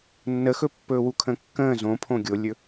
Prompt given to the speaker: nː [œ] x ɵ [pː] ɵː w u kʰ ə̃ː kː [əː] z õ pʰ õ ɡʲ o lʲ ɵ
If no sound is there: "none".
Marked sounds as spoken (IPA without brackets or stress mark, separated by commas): ə, pː, ə̃ː